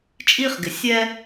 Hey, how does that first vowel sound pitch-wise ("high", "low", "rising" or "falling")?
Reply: high